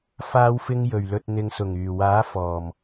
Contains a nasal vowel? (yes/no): no